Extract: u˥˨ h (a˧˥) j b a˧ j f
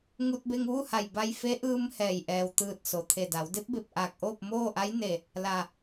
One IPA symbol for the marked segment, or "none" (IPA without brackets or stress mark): a˧˩